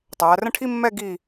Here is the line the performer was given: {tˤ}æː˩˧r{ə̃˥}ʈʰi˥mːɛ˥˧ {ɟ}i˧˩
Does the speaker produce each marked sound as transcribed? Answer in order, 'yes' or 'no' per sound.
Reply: yes, yes, no

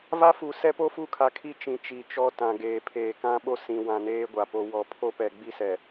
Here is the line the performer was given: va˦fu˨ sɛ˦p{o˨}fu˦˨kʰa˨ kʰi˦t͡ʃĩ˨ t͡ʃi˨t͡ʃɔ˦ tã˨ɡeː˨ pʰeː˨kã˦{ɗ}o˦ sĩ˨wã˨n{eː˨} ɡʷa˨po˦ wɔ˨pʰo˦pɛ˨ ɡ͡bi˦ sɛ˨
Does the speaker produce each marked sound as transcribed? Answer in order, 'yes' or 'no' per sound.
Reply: no, no, no

